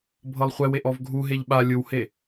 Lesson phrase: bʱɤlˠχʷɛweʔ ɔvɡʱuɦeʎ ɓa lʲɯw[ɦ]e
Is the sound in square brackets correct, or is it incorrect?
incorrect